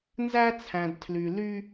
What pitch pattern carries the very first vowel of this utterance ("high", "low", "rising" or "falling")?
high